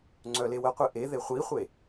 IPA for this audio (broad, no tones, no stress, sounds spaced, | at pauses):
ŋ͡ǀ œ l e w ə qʷ e ʔ e ð e χʷ i χʷ e